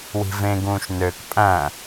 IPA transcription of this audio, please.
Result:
w i̤ v ẽ ɡ ũː ʃ n ø k pʼ æ̃

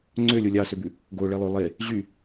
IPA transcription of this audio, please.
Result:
ŋ͡ǀ ø lʲ o lʲ ɑ s ø b ʉ | ɡ o ɭ e lˠ ø lˠ e | ʑ y

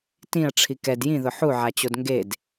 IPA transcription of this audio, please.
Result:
t ĩ ɐ̯ ʈ͡ʂʰ i k ɛ d j ĩ ð ʊ ħ u ʕ a t͡ɕ o d ŋ ɡ e d

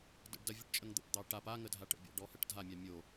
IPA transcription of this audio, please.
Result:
d ə̰ ɖ d ɐ vʲ ə ʈ t͡ʃʼ ə ŋ d̪ ə̰ p d̪ ɑ ʈ a p a ŋ ə dʱ a ʈ ə̰ bʲ ɑ̰ ɖ ɔ h ɐ ʈ dʱ a mʲ a mʲ o

